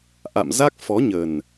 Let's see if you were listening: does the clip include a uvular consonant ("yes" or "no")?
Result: no